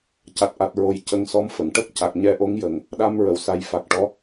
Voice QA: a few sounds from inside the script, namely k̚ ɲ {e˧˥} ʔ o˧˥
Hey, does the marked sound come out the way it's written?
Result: no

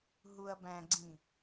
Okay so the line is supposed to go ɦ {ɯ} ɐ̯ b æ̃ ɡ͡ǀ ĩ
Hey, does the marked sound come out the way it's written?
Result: no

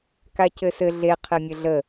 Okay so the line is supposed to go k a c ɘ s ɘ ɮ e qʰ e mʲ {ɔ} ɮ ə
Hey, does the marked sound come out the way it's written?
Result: no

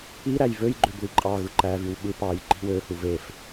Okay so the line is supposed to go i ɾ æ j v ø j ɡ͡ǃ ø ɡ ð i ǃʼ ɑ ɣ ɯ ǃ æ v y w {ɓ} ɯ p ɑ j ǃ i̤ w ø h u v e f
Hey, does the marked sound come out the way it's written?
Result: yes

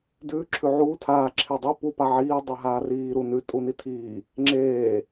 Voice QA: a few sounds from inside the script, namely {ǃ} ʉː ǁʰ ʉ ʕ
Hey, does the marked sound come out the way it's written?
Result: no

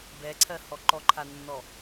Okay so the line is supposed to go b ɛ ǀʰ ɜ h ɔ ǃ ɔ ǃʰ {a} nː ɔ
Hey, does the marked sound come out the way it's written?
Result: yes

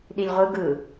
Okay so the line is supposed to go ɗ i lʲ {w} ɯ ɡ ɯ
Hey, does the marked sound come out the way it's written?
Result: no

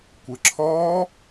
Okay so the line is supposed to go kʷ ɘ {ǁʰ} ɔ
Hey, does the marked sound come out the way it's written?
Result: yes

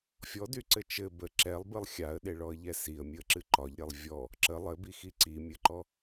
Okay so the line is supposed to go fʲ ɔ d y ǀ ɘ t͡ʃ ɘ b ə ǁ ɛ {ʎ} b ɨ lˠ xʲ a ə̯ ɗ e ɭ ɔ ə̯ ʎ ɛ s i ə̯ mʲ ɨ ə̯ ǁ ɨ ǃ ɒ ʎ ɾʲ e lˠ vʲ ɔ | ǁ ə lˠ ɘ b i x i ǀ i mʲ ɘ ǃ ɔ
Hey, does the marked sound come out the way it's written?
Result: no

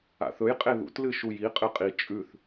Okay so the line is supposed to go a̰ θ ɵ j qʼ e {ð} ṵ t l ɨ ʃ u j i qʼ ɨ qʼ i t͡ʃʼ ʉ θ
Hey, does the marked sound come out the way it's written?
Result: yes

